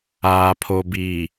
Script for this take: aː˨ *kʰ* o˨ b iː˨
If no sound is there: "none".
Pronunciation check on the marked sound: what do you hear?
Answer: pʰ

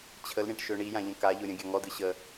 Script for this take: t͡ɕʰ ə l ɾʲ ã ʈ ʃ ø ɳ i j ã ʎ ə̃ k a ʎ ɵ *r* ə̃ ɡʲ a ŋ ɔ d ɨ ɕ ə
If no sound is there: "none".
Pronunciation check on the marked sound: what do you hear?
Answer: ɾʲ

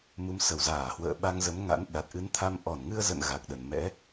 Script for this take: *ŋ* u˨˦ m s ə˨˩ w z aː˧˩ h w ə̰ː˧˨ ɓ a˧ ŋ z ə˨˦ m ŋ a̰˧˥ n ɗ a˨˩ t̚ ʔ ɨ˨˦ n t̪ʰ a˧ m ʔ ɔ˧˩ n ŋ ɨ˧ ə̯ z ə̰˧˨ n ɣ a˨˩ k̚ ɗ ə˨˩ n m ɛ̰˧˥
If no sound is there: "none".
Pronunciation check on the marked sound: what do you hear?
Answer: m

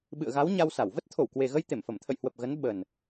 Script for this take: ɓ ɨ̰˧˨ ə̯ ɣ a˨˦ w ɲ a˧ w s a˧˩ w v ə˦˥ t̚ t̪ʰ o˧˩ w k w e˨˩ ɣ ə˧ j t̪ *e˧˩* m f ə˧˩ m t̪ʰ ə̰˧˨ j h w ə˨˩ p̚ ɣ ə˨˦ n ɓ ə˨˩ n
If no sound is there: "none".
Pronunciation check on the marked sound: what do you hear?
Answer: e˧˩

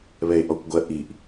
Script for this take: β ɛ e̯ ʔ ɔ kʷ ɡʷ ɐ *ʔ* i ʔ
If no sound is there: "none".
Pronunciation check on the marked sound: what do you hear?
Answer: ʔ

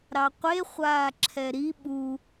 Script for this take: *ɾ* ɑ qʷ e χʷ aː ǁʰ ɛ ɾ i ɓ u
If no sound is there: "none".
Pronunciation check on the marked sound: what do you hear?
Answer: ɾ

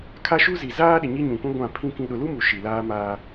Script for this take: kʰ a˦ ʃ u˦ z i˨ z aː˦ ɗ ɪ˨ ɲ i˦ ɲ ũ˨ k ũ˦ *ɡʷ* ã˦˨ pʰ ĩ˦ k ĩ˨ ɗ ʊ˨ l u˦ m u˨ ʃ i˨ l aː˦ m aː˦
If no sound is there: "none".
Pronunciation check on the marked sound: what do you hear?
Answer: ɡʷ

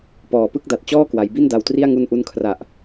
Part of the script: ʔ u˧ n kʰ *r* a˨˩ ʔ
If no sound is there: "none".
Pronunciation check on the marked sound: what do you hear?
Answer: r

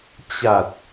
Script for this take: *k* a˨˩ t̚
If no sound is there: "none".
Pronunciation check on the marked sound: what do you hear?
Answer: t͡ɕ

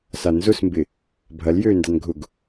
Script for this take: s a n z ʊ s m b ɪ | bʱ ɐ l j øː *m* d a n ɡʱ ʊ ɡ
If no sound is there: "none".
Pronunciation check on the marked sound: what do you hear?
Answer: n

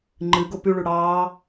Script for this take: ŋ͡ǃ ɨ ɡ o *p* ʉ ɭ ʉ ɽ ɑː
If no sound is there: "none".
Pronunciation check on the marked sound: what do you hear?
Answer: p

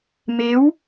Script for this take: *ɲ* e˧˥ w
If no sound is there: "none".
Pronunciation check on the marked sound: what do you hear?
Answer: m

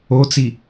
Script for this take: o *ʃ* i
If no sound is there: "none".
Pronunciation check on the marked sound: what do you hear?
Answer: t͡s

